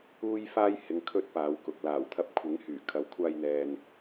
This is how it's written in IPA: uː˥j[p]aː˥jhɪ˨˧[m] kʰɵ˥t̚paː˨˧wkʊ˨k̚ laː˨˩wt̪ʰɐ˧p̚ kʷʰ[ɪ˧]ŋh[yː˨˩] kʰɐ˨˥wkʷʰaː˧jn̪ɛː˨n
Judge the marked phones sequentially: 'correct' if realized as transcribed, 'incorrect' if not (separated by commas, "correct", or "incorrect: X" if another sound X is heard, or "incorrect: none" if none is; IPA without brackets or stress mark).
incorrect: f, incorrect: ŋ, incorrect: ɪ˨˥, correct